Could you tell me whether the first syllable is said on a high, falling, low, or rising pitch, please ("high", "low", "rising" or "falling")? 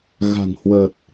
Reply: low